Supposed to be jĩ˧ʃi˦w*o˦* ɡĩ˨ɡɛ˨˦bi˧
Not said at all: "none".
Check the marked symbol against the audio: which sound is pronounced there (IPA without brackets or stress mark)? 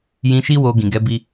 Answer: o˧